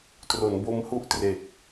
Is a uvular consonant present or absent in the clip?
absent